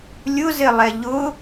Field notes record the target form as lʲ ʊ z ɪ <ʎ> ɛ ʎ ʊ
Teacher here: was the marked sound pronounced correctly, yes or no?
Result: no